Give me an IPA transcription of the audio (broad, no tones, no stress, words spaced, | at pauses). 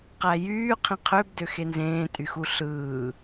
qæjyː qʰĩqʰøb døxenzẽː tʼyxuɬɯː